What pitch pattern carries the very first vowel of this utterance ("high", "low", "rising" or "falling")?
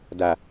low